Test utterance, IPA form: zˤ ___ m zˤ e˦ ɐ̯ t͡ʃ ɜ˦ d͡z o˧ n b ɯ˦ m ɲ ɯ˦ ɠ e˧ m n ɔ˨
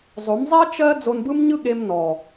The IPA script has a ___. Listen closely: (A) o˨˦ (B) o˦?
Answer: A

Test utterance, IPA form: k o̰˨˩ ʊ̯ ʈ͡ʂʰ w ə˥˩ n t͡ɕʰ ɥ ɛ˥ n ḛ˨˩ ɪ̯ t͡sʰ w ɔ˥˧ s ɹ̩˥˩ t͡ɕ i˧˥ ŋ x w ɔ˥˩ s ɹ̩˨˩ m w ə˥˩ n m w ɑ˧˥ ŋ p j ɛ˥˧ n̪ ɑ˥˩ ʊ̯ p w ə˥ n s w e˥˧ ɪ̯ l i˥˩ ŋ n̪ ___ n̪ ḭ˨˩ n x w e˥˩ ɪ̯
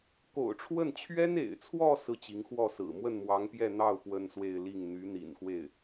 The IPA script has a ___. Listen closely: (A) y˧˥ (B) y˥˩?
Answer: A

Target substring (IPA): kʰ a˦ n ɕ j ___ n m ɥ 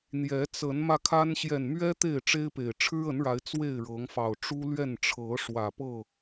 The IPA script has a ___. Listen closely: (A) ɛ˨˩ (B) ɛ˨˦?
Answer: A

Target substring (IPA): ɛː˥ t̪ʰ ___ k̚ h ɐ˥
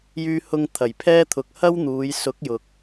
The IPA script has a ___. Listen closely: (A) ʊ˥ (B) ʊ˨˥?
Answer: B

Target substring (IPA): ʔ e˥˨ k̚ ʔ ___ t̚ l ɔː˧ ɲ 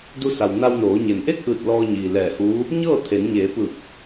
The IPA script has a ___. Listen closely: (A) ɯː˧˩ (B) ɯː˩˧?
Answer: A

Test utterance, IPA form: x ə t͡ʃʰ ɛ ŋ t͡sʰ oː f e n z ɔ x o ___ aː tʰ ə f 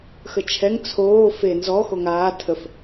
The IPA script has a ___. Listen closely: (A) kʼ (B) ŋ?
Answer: B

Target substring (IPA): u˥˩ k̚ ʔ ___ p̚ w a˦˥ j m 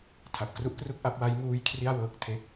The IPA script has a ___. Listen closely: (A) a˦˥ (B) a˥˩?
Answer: A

